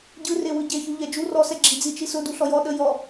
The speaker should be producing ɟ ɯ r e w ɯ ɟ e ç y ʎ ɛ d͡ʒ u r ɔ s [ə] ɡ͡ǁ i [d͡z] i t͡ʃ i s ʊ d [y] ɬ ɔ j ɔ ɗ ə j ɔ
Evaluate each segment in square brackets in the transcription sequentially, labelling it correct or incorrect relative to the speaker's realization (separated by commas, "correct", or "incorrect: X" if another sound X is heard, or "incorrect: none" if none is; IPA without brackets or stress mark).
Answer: incorrect: ɛ, correct, incorrect: u